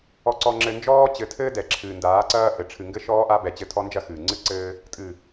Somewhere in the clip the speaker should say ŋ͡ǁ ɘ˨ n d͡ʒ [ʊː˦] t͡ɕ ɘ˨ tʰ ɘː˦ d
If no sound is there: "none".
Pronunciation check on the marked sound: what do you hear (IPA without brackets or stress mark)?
ɔː˦